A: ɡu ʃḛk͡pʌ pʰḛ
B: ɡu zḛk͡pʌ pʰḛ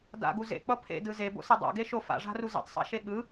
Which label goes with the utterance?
B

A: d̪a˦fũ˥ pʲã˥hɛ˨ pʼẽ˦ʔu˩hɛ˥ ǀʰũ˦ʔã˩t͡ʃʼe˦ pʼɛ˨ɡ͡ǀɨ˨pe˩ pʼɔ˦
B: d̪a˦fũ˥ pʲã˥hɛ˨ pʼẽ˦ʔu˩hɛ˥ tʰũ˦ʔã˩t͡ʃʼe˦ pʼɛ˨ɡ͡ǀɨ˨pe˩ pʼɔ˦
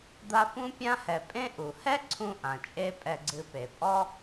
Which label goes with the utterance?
A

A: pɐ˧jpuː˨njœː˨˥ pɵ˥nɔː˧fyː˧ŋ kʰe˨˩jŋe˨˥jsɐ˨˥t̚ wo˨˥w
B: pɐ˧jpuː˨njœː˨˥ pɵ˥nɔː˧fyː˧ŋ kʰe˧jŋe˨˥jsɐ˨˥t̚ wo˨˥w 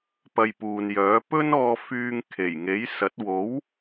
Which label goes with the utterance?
A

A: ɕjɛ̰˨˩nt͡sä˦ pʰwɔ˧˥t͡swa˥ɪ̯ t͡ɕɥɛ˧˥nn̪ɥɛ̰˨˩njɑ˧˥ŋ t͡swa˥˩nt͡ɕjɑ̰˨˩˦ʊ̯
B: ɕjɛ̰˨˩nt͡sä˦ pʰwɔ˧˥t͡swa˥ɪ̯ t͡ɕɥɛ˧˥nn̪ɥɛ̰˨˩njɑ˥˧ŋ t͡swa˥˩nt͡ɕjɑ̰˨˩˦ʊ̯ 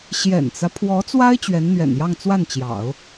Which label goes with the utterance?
B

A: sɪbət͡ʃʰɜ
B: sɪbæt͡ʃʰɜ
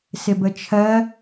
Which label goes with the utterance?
A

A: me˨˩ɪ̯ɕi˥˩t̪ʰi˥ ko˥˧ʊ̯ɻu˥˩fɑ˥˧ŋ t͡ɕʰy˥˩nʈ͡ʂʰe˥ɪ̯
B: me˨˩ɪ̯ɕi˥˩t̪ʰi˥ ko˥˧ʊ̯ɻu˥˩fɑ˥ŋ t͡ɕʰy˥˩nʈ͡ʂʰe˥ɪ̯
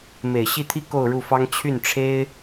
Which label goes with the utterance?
B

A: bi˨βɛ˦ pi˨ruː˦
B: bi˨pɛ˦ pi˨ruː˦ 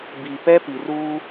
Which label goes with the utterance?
B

